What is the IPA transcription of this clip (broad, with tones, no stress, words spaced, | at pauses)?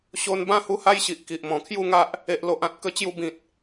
ɕo˧nbã˥˧ hu˦ha˦jɕi˨ʔ ki˨ʔmɔ̃˨˩kʰju˥˧ŋa˦ʔ | e˨ʔlo˨ʔ ã˨t̚kə˧t͡ɕju˧ bĩ˨t̚